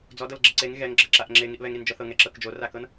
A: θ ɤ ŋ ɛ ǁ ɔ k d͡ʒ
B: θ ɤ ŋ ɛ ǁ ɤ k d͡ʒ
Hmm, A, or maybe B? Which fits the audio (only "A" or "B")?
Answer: B